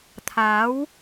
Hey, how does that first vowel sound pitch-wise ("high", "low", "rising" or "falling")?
rising